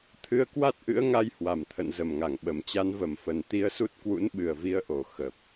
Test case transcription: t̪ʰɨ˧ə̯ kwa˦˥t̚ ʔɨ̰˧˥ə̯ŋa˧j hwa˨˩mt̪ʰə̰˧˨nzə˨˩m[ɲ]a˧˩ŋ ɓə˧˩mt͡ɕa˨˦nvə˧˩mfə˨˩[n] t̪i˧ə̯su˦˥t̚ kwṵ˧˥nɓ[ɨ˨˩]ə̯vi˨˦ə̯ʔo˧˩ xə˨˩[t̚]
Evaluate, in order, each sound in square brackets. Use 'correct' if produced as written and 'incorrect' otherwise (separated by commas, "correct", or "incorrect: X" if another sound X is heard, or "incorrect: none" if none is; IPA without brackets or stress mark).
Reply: incorrect: ŋ, correct, correct, incorrect: p̚